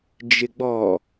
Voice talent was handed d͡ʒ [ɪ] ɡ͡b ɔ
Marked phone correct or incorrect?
correct